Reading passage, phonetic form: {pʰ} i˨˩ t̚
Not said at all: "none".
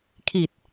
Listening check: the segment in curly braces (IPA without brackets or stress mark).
kʰ